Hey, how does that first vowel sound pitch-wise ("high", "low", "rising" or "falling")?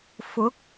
rising